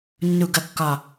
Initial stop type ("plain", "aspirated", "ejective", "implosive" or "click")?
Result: plain